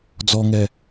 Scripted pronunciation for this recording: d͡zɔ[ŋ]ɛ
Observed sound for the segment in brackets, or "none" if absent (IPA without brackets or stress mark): ŋ